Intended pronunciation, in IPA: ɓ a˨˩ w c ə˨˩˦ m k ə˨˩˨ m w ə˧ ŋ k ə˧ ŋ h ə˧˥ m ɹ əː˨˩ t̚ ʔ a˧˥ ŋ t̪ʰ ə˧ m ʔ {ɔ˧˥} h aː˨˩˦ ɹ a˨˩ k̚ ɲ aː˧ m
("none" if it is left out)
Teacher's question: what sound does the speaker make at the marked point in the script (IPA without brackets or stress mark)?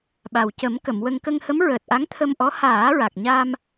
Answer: ɔ˧˥